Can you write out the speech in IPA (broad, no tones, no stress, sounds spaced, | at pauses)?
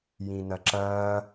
j ĩ n ɐ ǁ ɐː